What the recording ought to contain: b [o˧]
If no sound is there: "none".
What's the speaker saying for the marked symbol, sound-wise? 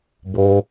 o˧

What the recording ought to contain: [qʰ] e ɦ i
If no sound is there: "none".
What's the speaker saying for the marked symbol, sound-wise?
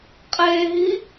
qʼ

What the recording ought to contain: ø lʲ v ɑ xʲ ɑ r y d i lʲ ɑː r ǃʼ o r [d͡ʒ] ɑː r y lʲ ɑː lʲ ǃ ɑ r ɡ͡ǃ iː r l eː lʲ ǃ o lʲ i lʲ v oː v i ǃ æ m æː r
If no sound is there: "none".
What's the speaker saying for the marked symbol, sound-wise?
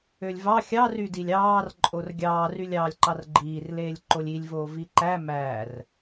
ɡʲ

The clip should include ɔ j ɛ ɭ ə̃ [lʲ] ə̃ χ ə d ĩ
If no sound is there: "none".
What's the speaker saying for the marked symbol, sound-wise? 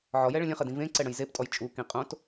lʲ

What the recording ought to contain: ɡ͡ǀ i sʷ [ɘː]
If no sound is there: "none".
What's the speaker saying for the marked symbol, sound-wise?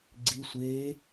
eː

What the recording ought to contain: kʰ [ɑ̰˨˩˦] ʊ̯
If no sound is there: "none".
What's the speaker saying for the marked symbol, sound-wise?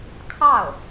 ɑ˥˩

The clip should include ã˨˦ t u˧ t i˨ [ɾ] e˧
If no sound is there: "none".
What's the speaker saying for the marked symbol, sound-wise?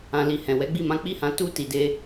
d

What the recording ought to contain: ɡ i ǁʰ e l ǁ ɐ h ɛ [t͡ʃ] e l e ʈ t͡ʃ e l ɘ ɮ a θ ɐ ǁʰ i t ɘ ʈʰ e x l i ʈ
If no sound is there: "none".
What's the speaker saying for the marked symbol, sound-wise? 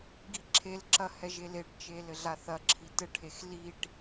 ʒ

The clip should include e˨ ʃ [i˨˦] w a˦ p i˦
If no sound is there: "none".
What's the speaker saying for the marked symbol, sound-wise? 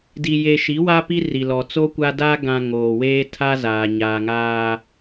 i˨˦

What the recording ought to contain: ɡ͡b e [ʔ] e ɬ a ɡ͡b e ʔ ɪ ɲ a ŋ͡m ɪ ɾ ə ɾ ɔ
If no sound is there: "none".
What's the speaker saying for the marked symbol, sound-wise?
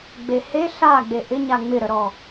h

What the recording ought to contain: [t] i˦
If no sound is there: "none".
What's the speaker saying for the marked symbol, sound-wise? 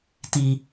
t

